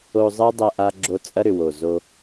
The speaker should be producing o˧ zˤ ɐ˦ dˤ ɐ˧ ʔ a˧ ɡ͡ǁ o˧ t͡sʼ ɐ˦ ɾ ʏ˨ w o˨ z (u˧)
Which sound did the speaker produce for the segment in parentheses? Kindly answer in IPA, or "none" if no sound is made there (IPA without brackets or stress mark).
o˧